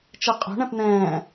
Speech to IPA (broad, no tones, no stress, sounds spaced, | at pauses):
t͡ʃ ɛ qʼ o̤ ɳ ɛ̃ p n̪ ɛ̃ː